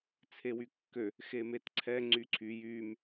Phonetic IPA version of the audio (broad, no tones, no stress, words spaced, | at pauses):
t͡sʰewykːø | xemetǀʰɛ ŋ͡ǀyǀʰy jym